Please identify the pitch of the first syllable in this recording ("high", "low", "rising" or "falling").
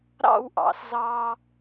falling